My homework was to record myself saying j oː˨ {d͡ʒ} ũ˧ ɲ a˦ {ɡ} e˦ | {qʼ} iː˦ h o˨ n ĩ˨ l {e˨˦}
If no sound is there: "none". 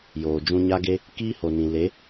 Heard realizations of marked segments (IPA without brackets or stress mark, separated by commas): d͡ʒ, ɡ, k, e˨˦